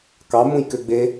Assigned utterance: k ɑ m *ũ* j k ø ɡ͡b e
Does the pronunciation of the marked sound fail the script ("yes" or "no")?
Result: no